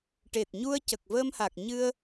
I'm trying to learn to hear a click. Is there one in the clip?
no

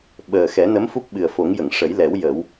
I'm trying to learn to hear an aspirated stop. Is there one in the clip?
no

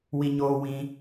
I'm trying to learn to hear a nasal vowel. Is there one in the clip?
yes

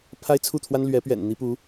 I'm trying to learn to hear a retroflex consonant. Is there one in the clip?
no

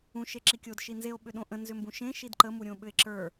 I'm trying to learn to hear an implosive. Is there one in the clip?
yes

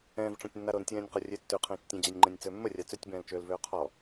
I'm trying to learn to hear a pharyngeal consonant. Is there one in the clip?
no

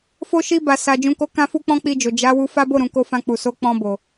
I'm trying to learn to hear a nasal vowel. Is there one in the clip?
yes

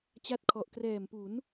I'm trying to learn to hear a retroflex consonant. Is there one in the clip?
no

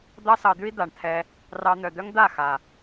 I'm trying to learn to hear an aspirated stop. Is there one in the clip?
yes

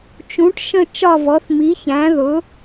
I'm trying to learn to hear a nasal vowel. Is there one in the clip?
yes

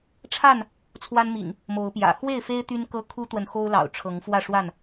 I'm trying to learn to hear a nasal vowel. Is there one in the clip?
no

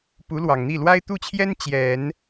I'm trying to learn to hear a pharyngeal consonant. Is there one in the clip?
no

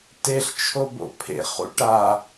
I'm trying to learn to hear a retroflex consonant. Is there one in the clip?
yes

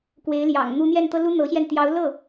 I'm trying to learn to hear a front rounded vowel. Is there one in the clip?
no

